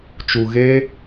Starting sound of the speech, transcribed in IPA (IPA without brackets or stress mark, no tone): t͡ʃ